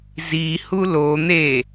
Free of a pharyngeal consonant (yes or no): yes